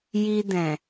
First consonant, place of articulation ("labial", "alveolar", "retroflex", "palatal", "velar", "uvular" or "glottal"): palatal